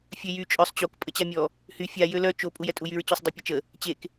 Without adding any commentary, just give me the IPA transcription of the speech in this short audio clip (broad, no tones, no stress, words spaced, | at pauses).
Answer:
fʲøjy t͡ʃʼœsˤ t͡ɕok pʼət͡ɕamʲɔ | hy fʲa jølœ t͡ʃo pʼujɛtʼujyɹ t͡ɕɔsˤdˤœpʲat͡ʃə | t͡ɕek